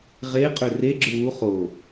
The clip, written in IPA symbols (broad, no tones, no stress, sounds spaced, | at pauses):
ʁ e qʼ ø r e ɡ͡ǁ ɯ w u χ o